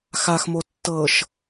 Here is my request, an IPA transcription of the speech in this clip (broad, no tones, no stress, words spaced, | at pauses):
xaxmo tːɤʃ